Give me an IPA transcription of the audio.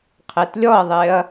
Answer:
qʰ e t lʲ ɔ ɐ̯ ðˤ e ɐ̯

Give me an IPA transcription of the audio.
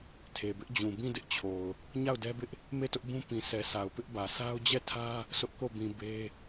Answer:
tʰ e˨ b ɪ˦ ʔ d͡ʑ ũ˨ b ĩ˦˨ d ɪ˦ ʔ t͡ɕʰ o˨ ʊ̯ | ɲ a˦˨ ʊ̯ d ɛ˦ b ɪ˦ ʔ | m e˦˨ t ʊ˦ ʔ b ũ˦ p ĩ˨ sʰ ɛ˨ sʰ a˨ ʊ̯ p ɪ˦ ʔ b ä˨ sʰ a˦ ʊ̯ d͡ʑ ɛ˦˨ tʰ ä˦ | sʰ ʊ˦ ʔ k o˦˨ b ĩ˨ b e˦

